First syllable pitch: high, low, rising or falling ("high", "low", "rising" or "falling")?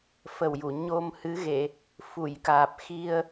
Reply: low